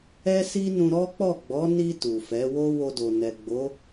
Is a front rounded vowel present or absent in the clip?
absent